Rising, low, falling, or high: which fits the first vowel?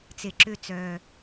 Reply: low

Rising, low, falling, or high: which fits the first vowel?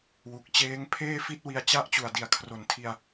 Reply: low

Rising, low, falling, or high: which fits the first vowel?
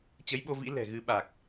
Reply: rising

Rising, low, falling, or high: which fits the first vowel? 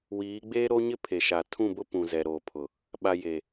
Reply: rising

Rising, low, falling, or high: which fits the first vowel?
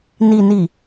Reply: low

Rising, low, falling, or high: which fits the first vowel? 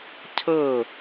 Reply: falling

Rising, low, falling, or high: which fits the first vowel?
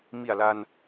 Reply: low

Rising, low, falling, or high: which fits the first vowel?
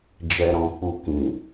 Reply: low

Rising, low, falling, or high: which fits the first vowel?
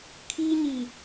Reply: high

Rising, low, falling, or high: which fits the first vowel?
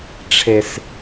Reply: high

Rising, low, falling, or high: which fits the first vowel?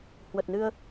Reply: low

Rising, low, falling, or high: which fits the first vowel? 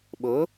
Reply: rising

